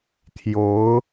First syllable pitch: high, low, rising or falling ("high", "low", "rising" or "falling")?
rising